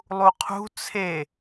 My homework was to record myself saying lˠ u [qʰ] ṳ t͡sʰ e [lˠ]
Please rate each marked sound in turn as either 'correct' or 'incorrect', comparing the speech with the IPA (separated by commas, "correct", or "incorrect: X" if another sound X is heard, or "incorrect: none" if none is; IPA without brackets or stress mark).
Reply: correct, incorrect: none